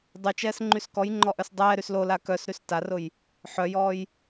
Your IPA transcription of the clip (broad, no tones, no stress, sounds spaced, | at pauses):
dˤ y t͡ʃ ɛː s ŋ͡ǃ y s k ɔ j ŋ͡ǃ ɔ ʔ œ s dˤ ɛː ɾ y s l o l a k œ s ɾ y s t a r ʊ j | ħ œ j ɔː j